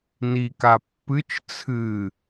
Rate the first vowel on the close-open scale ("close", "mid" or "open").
close